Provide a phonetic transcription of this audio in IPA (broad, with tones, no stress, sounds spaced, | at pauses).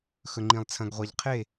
x ɵ˩ ŋ͡ǃ ĩ˩ lˠ t͡sʰ ɐ̃˩ ɡ ʁʷ a˩ ʎ qʰ e˧˩